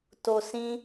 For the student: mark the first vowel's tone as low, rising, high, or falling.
low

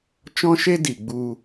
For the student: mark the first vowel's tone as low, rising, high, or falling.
high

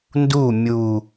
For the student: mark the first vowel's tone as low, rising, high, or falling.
falling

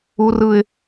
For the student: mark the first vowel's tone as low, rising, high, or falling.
high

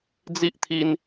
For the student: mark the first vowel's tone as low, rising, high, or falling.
high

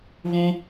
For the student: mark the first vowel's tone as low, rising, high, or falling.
high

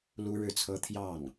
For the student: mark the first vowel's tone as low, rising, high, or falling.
high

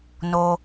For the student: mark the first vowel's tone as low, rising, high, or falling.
low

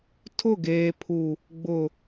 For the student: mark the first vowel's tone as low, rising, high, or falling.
falling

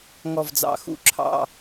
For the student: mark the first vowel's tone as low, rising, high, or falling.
falling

